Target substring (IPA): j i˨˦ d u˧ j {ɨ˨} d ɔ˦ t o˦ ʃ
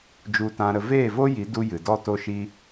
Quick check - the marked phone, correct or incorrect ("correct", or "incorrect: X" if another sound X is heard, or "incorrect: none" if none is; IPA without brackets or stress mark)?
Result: correct